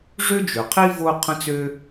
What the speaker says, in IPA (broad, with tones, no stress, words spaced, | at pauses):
ʐø˥d͡ʒø˩qʰi˥ vo˥ qʰə̃˥t͡sø˥